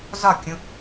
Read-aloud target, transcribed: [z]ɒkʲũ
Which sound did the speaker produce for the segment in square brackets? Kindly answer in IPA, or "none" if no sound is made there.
z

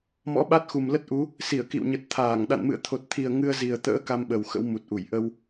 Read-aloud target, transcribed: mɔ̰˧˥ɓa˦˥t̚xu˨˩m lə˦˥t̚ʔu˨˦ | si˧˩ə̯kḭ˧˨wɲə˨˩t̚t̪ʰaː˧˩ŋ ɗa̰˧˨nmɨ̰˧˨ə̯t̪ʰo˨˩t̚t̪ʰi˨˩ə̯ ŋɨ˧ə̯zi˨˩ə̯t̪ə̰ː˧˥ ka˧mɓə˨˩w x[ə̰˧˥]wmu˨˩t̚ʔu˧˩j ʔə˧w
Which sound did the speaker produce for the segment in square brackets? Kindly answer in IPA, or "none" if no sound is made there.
ə̰˧˥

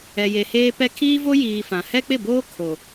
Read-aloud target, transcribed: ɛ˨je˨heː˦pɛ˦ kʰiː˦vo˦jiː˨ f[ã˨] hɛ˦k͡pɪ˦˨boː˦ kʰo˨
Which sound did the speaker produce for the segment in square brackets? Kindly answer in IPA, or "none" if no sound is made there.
ã˨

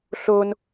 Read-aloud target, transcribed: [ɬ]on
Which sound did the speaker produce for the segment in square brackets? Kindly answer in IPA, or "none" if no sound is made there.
ɬ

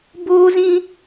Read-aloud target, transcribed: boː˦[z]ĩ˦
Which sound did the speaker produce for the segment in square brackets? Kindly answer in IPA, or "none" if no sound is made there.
z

